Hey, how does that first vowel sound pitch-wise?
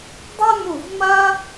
high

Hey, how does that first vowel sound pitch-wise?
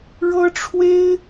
high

